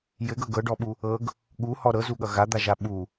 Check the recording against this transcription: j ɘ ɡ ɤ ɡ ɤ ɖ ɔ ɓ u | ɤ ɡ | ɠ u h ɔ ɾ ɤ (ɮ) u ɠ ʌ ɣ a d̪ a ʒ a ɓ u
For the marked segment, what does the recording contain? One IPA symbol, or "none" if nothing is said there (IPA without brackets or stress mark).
z